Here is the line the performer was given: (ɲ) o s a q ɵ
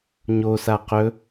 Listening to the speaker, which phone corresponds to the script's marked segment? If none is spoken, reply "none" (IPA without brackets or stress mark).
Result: ɲ